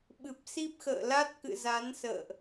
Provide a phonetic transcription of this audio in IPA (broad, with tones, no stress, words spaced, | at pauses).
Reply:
ɓɨ˨˩p̚si˦˥p̚ xə̰ː˧˨la˦˥t̚kɨ̰˧˨za˨˦n sə̰ː˧˨ʔ